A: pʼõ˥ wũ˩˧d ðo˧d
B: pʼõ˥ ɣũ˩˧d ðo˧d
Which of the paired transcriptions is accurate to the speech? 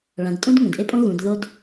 B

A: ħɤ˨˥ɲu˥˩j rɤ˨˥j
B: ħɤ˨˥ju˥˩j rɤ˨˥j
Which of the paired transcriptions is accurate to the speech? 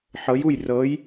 B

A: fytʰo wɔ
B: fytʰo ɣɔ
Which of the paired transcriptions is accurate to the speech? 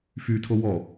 A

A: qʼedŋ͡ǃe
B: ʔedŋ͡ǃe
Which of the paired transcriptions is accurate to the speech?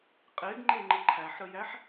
A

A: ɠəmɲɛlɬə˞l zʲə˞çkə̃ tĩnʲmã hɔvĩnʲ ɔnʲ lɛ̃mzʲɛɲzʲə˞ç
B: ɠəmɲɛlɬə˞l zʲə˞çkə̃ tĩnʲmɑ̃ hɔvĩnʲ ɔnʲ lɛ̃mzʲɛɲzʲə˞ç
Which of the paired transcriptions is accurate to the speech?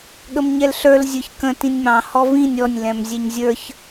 B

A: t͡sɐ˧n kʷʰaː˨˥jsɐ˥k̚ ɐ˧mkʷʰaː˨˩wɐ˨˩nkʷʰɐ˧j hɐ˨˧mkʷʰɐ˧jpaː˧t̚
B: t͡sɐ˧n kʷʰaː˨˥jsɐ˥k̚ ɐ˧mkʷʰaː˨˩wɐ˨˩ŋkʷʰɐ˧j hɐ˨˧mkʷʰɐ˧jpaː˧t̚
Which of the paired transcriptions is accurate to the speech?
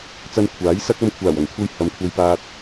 B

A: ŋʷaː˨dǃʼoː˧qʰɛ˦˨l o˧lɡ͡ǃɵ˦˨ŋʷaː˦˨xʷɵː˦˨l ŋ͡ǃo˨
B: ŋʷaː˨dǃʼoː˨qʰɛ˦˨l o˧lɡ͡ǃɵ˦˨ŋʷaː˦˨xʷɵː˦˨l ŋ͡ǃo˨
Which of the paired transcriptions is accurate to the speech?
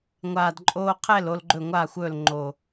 A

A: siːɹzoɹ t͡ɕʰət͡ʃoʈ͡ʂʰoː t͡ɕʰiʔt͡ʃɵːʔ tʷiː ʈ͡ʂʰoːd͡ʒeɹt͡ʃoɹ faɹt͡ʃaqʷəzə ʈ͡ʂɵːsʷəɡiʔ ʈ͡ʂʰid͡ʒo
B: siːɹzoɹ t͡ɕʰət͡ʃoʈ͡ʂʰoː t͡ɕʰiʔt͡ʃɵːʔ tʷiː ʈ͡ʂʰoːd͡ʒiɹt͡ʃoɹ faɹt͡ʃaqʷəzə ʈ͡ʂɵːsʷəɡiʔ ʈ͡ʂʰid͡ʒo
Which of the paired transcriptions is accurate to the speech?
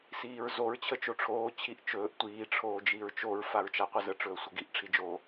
B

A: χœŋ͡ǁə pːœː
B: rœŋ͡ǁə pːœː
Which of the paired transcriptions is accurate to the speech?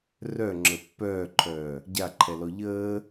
B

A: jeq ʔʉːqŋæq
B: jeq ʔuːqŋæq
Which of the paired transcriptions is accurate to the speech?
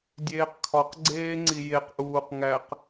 B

